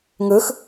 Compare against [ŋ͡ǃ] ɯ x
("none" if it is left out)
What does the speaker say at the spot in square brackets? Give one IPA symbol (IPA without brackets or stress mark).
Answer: ŋ